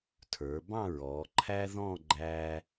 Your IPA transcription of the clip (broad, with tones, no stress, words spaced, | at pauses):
tʰə˞˩˧bɑ̃˥˧ ɹɔ˩˧ǃʰæ˥ ðɔ̃˥˧ ɡ͡ǃæ˧